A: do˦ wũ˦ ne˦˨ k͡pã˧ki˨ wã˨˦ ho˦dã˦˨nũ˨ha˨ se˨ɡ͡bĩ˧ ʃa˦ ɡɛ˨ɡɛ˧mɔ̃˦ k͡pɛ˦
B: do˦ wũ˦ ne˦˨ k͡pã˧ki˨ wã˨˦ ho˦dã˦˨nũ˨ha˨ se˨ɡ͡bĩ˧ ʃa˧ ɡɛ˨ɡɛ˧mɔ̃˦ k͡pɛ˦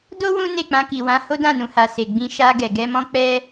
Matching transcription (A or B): B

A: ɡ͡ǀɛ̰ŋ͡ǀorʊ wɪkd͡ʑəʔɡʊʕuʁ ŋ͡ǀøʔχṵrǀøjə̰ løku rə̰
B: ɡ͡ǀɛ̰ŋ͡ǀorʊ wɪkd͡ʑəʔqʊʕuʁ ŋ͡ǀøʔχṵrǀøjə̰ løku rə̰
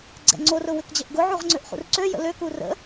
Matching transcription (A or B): A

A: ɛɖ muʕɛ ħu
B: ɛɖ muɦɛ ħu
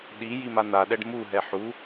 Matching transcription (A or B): B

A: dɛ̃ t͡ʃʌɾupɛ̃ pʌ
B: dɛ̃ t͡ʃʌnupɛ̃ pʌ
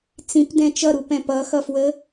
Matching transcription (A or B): A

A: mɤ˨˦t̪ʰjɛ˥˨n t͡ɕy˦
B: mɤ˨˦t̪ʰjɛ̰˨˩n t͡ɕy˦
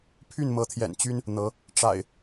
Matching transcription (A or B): B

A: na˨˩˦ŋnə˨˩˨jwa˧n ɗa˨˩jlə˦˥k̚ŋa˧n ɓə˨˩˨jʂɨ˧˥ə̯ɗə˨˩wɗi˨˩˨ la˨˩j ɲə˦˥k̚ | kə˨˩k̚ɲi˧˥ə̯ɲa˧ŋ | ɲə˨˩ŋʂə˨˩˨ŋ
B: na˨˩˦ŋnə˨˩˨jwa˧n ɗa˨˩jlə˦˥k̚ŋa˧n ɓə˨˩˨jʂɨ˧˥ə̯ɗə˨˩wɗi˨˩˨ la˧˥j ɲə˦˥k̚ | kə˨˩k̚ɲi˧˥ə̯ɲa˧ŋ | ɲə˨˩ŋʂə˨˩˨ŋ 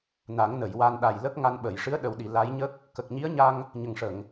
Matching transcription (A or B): B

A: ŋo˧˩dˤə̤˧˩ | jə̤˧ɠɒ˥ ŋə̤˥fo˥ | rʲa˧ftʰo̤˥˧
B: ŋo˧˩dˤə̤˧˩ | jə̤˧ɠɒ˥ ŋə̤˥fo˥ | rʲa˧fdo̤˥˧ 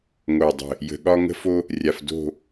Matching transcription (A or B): B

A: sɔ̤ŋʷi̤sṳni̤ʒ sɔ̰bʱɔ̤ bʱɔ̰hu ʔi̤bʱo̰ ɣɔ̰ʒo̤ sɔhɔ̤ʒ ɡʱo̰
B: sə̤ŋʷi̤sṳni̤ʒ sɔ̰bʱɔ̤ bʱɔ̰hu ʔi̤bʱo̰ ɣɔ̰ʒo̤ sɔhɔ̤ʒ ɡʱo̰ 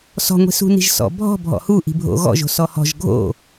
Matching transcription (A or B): A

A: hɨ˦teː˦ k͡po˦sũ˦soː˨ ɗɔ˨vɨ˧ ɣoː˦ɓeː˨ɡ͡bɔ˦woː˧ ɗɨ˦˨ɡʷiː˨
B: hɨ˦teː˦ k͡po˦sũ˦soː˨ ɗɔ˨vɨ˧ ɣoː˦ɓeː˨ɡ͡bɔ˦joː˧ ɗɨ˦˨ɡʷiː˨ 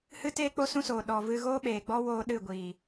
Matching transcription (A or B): A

